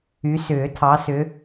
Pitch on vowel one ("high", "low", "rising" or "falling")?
rising